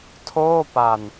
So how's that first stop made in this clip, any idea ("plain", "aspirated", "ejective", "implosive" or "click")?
aspirated